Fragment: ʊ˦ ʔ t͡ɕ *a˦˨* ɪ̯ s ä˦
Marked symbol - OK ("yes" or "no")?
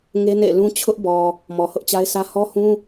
no